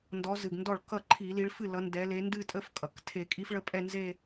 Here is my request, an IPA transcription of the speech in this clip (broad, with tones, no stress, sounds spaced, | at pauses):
n d ɔ˨˦ z ɨ˩ ɡ n d ɔ˥˩ ɭ k ʌ˥˩ ǃʰ i˧˩˧ l i˨˦ ɭ f ɨ˥˩ l ʌ˨˦ n d ɛ˨˦ l e˨˦ n d ɨ˥˧ tʼ ə˦˥ f kʼ ʌ˩ k tʰ e˧˩˧ kʼ i˦˥ f ɭ ə˦˥ pʼ ɛ˥˧ n z e˥˧